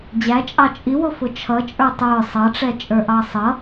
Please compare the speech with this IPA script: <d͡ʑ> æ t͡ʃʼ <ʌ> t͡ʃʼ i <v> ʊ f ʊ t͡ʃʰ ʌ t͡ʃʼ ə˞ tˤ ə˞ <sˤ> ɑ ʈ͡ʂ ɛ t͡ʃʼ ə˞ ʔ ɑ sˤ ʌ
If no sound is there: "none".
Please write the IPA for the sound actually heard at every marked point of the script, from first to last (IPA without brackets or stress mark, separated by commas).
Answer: d͡ʑ, ɑ, w, sˤ